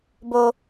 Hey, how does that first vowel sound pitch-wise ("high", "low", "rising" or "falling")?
high